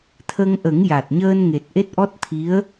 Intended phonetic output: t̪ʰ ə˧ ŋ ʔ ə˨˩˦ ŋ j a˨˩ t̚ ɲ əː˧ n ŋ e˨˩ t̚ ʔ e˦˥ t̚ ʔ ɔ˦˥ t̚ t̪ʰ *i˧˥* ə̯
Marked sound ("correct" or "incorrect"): correct